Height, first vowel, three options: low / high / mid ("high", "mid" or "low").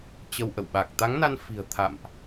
mid